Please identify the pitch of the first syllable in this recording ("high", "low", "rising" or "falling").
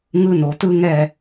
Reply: high